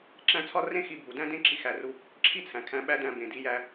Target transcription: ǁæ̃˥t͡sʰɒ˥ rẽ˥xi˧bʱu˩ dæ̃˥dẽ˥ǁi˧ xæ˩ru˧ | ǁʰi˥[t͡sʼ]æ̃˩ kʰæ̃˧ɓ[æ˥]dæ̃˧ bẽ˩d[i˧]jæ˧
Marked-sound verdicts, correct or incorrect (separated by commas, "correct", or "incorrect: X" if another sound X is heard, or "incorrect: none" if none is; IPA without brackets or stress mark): incorrect: t͡sʰ, correct, correct